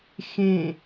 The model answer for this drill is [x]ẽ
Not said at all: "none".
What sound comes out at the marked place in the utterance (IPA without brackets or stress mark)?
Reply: x